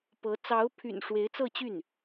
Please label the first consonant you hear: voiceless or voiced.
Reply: voiceless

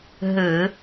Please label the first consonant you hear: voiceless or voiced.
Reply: voiced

